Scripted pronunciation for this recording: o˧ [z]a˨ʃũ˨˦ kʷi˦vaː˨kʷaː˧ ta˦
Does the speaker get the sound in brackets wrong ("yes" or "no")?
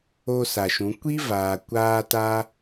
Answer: yes